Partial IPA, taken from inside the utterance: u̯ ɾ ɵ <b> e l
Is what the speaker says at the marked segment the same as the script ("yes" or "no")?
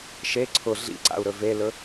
no